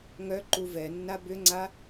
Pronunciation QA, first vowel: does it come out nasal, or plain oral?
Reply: oral